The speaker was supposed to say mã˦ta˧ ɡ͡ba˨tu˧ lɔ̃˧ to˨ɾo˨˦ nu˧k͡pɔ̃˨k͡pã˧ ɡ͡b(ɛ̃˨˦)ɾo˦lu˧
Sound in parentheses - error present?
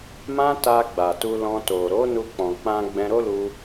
yes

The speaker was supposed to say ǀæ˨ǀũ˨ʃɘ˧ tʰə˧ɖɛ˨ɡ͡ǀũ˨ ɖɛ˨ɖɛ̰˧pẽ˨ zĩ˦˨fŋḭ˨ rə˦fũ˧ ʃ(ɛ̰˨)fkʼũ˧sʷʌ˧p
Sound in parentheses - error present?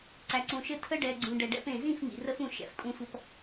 no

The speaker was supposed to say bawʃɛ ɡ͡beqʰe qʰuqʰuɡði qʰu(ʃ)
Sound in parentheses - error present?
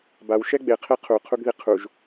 yes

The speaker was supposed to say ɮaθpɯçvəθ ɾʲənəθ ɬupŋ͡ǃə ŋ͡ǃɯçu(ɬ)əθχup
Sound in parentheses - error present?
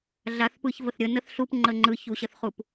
yes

